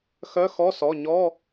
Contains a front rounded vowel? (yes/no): yes